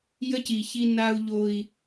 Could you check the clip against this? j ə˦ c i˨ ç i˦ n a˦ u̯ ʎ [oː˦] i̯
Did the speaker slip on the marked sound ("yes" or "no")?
yes